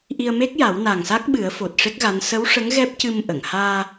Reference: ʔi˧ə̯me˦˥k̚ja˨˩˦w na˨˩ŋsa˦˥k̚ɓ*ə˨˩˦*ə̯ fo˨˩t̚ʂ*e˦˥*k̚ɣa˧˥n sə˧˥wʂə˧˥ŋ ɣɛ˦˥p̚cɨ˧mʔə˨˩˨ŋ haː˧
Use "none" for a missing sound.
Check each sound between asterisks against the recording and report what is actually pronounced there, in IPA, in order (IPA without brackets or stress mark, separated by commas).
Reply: ɨ˨˩˦, e˦˥